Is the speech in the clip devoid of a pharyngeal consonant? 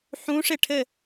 no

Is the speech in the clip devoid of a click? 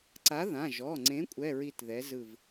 no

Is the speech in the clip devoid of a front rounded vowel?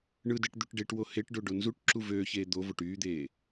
no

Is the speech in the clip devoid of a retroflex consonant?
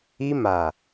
yes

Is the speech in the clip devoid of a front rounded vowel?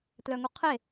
no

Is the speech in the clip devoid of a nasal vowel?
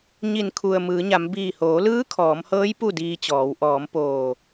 yes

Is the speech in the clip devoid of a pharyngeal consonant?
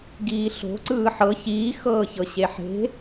no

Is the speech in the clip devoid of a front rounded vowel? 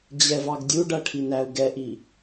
yes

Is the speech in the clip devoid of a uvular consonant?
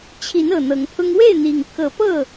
yes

